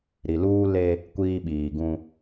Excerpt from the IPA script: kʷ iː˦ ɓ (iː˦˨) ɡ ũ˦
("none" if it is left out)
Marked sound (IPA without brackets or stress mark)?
iː˨